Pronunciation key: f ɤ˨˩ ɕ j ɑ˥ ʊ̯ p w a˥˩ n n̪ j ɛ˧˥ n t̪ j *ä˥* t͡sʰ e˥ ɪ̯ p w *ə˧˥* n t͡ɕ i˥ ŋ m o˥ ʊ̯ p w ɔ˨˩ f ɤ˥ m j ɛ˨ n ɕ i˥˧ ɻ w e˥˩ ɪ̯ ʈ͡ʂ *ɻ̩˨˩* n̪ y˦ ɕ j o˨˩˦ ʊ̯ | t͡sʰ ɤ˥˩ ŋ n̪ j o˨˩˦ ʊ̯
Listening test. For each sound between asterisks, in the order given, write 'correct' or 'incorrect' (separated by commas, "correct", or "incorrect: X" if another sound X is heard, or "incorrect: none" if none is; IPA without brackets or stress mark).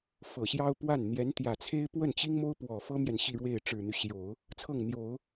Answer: incorrect: ä˨˩, incorrect: ə˥˩, correct